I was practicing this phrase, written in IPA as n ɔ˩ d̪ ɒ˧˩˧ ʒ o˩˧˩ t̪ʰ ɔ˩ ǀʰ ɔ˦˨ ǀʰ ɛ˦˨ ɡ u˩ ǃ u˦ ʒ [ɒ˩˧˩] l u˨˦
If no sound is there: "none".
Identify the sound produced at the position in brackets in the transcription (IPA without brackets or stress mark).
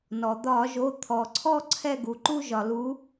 ɒ˩